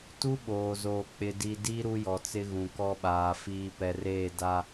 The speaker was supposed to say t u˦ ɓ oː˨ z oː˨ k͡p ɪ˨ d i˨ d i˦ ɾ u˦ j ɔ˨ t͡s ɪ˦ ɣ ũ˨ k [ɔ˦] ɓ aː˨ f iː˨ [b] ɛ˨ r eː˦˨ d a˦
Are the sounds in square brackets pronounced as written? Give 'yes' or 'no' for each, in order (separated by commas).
yes, no